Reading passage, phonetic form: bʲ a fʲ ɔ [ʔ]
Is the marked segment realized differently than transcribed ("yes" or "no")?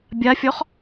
yes